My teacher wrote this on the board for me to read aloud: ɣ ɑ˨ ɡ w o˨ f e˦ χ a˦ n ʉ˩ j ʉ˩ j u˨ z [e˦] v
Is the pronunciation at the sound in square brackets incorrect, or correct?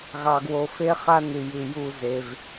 incorrect